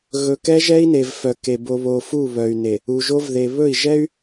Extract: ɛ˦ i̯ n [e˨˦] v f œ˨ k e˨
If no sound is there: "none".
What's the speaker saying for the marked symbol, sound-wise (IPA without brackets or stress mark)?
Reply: e˨